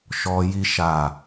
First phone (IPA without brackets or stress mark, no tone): ʃ